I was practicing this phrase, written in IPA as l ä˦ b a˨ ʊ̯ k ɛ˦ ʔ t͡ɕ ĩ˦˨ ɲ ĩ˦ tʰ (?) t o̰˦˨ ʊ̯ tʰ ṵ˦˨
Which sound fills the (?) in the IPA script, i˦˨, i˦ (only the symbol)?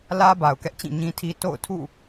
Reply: i˦